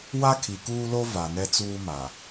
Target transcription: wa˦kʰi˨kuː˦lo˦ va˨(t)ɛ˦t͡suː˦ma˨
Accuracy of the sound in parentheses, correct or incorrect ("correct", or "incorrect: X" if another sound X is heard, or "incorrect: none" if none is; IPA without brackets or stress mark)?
incorrect: n